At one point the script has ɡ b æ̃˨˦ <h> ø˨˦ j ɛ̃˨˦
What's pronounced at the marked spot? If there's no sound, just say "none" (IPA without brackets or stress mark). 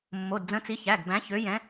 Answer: ç